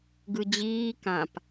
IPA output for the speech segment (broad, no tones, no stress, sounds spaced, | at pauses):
ɡ ɯ d͡ʑ iː k ã p